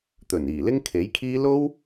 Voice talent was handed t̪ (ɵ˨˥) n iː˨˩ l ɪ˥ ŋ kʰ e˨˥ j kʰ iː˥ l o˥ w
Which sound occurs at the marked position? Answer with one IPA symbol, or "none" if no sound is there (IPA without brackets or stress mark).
ɵ˨˩